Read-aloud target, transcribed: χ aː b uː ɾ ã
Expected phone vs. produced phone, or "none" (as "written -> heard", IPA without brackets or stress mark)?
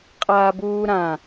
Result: χ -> qʼ